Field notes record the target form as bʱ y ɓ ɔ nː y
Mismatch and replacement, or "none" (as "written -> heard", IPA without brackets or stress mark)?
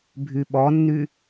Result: none